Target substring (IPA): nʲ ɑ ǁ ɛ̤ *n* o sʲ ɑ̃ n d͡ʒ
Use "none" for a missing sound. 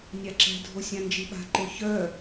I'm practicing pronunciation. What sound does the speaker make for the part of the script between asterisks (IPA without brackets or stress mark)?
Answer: dʱ